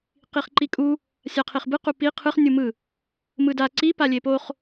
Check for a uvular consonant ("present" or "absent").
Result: present